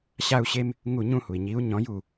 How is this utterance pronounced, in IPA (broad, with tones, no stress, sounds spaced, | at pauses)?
ɕ a˦ u̯ ɕ e˦ m | ŋ u˦˨ ɲ ũ˦ h u˩ i̯ ɲ i˨˥ u̯ ɲ ɔ̃˨˥ j u˦˨